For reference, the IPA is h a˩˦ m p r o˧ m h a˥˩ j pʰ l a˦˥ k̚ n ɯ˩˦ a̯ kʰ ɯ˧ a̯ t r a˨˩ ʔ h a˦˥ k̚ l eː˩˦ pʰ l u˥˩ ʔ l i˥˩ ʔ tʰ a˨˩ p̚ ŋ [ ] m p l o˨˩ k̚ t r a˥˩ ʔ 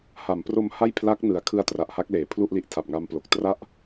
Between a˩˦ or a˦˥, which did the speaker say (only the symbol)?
a˦˥